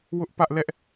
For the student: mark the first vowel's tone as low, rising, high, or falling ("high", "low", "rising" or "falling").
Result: high